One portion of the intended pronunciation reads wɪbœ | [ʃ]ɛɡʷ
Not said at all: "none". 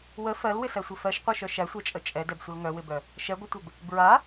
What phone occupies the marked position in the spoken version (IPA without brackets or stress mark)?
ʃ